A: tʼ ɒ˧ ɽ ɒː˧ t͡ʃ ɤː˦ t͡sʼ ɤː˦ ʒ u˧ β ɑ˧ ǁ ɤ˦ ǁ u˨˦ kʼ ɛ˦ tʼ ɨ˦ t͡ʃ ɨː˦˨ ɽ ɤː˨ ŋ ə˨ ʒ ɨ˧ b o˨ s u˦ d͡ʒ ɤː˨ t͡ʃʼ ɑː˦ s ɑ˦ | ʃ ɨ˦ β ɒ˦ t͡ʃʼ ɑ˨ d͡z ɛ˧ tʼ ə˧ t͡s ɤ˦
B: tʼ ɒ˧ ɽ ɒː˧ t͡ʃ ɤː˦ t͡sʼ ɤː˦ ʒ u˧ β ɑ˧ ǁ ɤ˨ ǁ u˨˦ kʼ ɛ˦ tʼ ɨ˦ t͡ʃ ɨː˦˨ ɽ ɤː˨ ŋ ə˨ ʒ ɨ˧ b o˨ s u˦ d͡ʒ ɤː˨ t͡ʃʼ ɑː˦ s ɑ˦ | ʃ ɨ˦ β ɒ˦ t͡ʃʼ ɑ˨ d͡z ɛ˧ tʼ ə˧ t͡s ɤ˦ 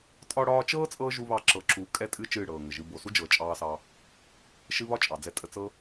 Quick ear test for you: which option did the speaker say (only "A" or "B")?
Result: B